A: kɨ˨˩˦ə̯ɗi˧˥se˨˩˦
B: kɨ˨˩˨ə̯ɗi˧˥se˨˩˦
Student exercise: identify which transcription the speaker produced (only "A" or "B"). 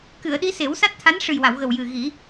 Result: B